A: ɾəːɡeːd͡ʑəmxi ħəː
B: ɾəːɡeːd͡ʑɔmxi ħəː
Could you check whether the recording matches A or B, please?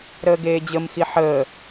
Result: A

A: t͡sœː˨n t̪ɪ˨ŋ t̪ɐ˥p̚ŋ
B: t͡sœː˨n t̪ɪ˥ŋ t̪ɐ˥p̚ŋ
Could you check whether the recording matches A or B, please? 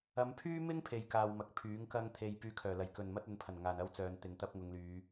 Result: A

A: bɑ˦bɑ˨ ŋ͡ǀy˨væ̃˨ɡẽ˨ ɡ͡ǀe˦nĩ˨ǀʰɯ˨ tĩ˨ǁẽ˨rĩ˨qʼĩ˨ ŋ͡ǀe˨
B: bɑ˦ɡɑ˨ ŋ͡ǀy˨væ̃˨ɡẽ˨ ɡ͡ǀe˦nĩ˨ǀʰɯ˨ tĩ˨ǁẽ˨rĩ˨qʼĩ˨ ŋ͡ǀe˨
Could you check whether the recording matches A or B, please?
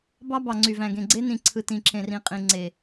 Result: A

